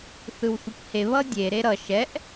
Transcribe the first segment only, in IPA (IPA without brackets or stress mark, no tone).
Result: θ